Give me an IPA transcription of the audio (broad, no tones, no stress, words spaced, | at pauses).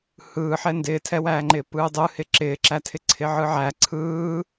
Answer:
hɯːħɛ ndɪːtʰɛwæːŋ͡ǃɪː pɯːdˤɯhɪ ǁɪːǁætʰɪ ǀʰɪʕɯʕæ ǀʰɯː